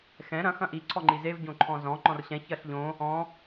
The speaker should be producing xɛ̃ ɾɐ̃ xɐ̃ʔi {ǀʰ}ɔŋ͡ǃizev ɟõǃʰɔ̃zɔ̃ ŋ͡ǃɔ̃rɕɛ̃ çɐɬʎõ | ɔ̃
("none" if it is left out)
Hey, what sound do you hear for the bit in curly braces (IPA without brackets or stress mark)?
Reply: ǀʰ